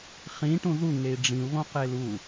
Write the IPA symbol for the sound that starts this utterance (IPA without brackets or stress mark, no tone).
χ